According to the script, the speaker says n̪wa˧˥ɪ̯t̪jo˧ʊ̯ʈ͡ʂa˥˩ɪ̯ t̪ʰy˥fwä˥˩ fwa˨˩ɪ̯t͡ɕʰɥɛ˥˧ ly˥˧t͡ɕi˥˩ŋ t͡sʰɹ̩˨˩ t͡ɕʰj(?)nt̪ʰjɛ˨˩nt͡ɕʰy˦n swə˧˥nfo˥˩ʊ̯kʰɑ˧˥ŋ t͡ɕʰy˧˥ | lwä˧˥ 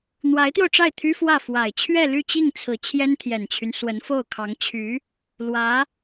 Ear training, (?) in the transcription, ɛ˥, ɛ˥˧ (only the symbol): ɛ˥